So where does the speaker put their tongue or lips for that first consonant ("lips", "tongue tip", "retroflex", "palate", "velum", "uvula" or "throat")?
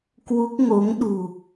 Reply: velum